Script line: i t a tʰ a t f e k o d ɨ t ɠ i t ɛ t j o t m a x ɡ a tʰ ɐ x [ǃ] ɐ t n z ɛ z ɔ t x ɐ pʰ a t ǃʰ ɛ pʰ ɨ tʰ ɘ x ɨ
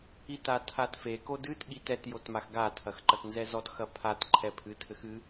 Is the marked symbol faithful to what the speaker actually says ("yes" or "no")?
yes